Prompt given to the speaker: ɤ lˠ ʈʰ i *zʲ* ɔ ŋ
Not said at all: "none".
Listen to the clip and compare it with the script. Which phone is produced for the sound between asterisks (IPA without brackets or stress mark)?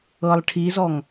z